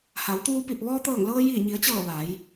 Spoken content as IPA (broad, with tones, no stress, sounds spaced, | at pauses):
h a˩˧ w t̪ uː˧ p i˧˩ p̚ ʋ ɔː˧ t̪ ɤː˧˩ ŋ l ɤː˧ j iː˧˩ ɲ i˩˧ ə̯ t͡ɕ ɤː˧˩ ʋ a˩˧ j